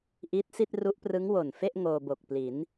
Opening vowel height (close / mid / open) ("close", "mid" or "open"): close